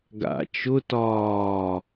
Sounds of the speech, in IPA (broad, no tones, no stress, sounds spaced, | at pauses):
ɡ a̰ t͡ʃ ʊ t ɒː